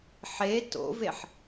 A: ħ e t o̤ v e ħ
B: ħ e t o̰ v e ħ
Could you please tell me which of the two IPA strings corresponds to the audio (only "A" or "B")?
B